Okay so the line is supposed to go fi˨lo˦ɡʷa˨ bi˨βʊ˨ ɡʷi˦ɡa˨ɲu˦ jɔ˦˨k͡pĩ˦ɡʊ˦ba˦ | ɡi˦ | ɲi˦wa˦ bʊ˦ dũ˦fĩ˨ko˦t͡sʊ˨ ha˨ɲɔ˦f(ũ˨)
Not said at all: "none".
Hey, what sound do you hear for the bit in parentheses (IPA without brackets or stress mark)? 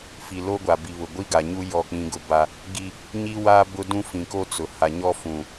ũ˨